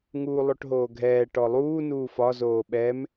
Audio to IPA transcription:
ŋ uː lˠ o ʈ ɦ oː ɡʱ ɛː ʈ ɔ lˠ uː n uː f ɒ z oː ɓ ɛ m

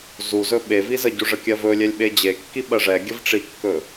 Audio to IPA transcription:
z u z ɵ ɓ e v i z ə ɟ u ʐ ə kʲ ɜ v ɵ lʲ ɛ lʲ ɓ e d͡ʑ e kː i ɓ ɜ ʐ ɛ ɡʲ ə v ʈ͡ʂ i kː ɵ

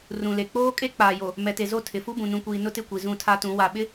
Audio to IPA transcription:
r ũ˨ l e˨ k͡p oː˦ kʼ e˦ k͡p aː˨ j o˨ | m ɛ˨ t e˨ z o˦˨ tʰ ɪ˨ f u˦ b ũ˨ n ũ˨ kʷ iː˨ n ʊ˦ t ɪ˦˨ kʷ i˨ z ũ˦˨ tʰ a˦ t ũ˨˦ w a˨ ɓ ɪ˦

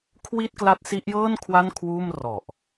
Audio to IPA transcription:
kʰ w i˥˩ t̚ k l a˦˥ t̚ s i˦˥ ʔ j ɤː˥˩ n kʰ w a˥˩ n kʰ w uː˥˩ m r ɔ˨˩ ʔ

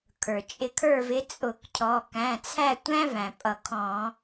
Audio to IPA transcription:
kʰ ə˞˩ t͡ʃʼ ɪ˨˦ kʰ ə˞˦˨ v ɪ˨˦ t͡sʼ ʊ˧˩˧ k cʰ ɔ˩˧˩ k æ̃˩˧˩ t͡sʰ æ˦˨ tʷ æ̃˦ v æ̃˩ pʼ ʌ˧˩˧ kʰ ɔ̃˧˩˧

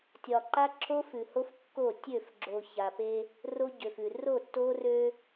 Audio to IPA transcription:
tʲ ɒ˨ ǃ a˦ ǁʰ o˦ f ʉ˨ h o˦ f kː o˦˨ tʲ ø˦˨ f ɡ͡ǁ o˨ ç a˨ p e˦ | r o˦ ɟ ø˨ f ʉ˨ r o˦˨ tː o˦ r ø˦

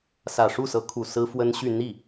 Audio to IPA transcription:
s ä˨˩ ʂ u˥˩ s ɤ˧˥ kʰ u˨˩ s ɹ̩˥ f w ə˥ n ɕ y˥˧ n̪ i˥˩

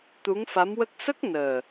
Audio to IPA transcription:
t̪ u˧˥ ŋ f a˧˥ m w ə˦˥ k̚ s ə˦˥ k̚ n əː˨˩

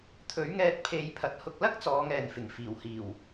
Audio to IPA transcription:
t̪ʰ ɵ˨˥ ɥ ŋ ɛː˧ t̚ pʰ e˨˧ j pʰ ɐ˨ t̚ h ʊ˧ k̚ l ɐ˥ k̚ t͡s ɔː˨˧ ŋ ɛː˨ n f ɪ˨˩ ŋ f iː˨˩ w h iː˨˩ w

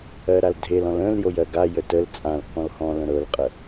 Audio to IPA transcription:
ɜ ɾ a l dʱ e l ɔ̃ l ə̃ l j o j ɜ ɡ a j ə t ə l t͡sʼ ã l k ɔ̃ l h ɔ̃ l ə̃ ɾ ɤ l qʼ ə

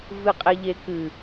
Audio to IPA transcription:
v ɨ qʼ e ʎ e k ɨ

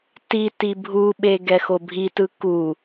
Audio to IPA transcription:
t i t i bʱ u ɓ e ɡ ɛ x o bʱ i t ɯ k u

